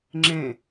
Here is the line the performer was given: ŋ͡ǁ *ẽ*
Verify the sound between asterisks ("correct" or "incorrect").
correct